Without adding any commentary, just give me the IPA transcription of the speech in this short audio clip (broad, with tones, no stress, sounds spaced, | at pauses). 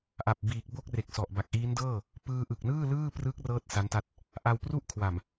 ʔ a˨˩ p̚ b iː˨˩ k̚ b o˥˩ k̚ r e˨˩ k̚ s ɔ˨˩ ʔ b a˨˩ k̚ ʔ iː˦˥ n d ɤː˥˩ | p ɯː˧ ʔ ɯ˨˩ k̚ n ɯː˥˩ l ɯː˥˩ p r ɯ˦˥ k̚ r ɤː˥˩ t̚ s a˦˥ n t a˦˥ t̚ | ʔ a˧ w p r u˥˩ ʔ kʰ w a˨˩ m